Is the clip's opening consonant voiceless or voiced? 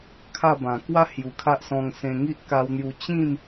voiceless